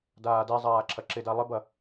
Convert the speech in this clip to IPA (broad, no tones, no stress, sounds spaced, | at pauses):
d aː d ɛ zˤ aː ǁʰ ɐ ǁ ɪ d a lˠ ɪ b ɐ